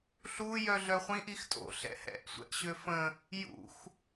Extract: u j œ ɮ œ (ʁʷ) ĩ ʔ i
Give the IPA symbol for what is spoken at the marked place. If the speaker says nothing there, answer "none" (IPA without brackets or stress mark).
χʷ